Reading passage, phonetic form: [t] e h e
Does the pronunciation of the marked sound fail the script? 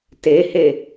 no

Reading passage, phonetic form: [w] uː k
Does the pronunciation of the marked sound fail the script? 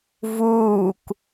yes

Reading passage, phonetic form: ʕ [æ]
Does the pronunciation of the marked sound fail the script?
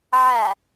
no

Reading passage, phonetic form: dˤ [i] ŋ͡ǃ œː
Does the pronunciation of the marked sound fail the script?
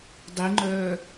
no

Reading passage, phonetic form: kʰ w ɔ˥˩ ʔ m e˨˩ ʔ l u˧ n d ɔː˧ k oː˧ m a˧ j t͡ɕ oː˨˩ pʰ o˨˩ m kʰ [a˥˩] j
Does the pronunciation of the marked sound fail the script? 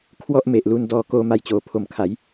yes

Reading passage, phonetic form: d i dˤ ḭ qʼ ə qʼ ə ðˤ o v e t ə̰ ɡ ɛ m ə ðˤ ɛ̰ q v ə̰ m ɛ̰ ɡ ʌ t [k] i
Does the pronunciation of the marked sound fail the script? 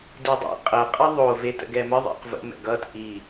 yes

